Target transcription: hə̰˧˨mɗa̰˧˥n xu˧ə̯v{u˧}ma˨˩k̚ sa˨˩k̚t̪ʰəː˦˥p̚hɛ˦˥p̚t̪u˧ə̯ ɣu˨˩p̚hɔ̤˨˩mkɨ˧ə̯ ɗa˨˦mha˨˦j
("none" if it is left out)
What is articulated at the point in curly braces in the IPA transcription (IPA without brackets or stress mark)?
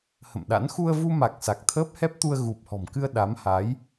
u˧